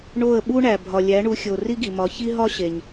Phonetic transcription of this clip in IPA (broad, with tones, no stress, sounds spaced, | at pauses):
ɳ o˥˩ ə̯ ɓ u˥ ɳ æ˩ bʱ ɒ˩ lʲ æ˩˥ ɳ u˩˥ xʲ o˩ r i˥ ɡ i˩ m ɒ˩˥ ç i˥ ɦ ɒ˥ ɕ e˩ ɲ